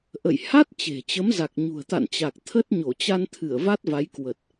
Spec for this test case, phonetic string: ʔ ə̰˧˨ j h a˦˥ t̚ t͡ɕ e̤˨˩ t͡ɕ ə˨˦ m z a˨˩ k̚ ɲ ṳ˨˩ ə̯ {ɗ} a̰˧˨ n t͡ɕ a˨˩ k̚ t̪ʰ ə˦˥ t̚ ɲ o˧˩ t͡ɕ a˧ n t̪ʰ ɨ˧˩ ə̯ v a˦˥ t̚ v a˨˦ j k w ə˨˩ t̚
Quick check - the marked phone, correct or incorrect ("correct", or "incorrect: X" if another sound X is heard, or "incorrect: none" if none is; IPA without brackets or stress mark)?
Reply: incorrect: t̪